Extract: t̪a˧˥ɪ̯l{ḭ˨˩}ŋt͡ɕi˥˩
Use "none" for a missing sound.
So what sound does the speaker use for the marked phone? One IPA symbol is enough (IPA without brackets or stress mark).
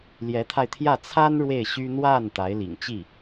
ḭ˨˩